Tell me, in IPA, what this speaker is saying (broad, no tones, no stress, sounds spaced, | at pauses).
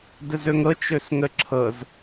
d ə z ɵ ŋ ɤ t͡ʃ ɵ s ŋ ə ǁʰ ɤ z